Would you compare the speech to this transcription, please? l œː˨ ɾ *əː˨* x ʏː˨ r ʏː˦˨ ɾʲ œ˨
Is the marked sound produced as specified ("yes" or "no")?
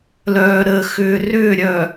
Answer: yes